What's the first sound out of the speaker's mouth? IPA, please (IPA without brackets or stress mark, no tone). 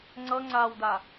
ŋ͡ǀ